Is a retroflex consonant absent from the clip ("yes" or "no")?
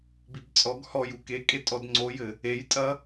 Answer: yes